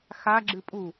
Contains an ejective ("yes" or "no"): yes